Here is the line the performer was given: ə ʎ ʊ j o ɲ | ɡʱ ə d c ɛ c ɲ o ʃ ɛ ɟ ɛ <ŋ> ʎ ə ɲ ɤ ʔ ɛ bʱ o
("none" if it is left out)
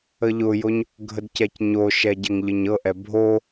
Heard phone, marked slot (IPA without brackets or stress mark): ŋ